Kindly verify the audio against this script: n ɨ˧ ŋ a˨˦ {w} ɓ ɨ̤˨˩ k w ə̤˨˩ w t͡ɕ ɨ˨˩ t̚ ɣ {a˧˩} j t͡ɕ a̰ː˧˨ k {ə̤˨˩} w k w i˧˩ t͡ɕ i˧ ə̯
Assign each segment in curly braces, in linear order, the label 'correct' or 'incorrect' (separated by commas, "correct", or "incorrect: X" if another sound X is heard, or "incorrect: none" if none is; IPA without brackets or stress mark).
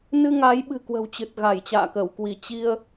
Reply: incorrect: j, correct, incorrect: ə˧˩